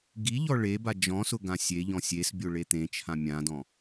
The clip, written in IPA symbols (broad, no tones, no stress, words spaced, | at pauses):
ɡiʎɔ ɭeba d͡ʒɔ̃sʊ ɡãsʲeʎɔ̃ sʲesbʲo ɭet̪ẽt͡ʃʰã mʲãdɔ̃